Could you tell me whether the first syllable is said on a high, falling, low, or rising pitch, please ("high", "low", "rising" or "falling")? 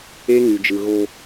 high